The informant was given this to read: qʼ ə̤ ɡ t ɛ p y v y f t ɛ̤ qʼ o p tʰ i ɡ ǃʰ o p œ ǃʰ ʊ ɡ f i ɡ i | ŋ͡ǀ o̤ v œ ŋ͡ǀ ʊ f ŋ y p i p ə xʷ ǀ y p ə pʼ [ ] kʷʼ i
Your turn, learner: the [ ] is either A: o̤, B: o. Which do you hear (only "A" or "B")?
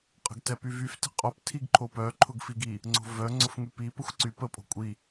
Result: A